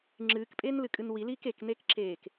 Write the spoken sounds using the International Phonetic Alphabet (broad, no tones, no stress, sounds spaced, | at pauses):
ŋ͡ǁ ɨː k pʼ eː n l ɨ kʼ ɨ n w i l iː k e k n e k ǁ eː k